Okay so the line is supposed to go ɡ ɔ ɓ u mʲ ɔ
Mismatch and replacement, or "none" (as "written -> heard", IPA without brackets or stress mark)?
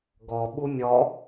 none